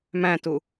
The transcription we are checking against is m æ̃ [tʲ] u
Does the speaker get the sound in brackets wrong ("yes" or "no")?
yes